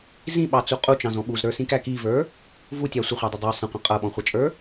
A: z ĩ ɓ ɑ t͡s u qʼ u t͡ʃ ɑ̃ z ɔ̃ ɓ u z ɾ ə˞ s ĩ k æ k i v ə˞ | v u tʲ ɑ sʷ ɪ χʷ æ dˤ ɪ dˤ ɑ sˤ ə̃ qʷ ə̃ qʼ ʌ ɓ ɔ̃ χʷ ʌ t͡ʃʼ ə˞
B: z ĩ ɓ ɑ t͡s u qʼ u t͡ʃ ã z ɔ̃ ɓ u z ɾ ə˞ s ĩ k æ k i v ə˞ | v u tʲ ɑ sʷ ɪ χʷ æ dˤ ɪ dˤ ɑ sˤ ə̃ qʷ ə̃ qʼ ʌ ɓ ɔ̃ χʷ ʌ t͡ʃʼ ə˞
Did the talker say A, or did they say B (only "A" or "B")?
A